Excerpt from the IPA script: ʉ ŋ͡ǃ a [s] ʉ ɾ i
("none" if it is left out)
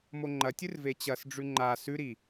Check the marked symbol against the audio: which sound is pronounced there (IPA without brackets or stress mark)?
s